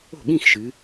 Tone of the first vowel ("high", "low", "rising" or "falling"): falling